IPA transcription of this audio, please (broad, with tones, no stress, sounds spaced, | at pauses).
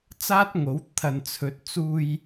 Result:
t͡s aː˥ t̚ ŋ o˨˥ w t̪ʰ ɐ˨ n t͡sʰ ɵ˨˥ t̚ t͡s uː˧ j